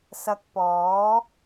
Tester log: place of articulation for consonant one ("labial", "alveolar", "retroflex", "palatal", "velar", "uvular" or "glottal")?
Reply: alveolar